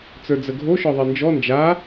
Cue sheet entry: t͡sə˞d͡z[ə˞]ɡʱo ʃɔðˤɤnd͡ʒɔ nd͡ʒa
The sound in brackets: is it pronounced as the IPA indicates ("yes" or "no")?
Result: no